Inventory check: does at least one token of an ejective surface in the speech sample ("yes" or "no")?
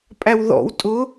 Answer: yes